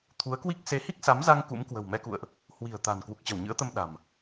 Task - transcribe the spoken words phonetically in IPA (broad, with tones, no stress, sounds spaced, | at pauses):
t̪ʰ u˨˦ ə̯ k w i˦˥ k̚ s e˨˦ h i˦˥ k̚ s a˨˦ m z a˧ ŋ k ṵ˧˥ m k w ə̤˨˩ w m ɛ˧ k ṵ˧˨ ə̯ ʔ | h w i̤˨˩ ə̯ t̪ a̤˨˩ n k w u˨˩ k̚ t͡ɕ ə˧˩ w ɲ ɨ̰˧˥ ə̯ t̪ ə˧ m ɗ a̤˨˩ m